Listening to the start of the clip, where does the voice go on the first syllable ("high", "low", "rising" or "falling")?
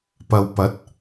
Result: low